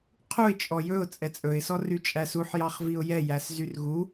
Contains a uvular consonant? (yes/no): yes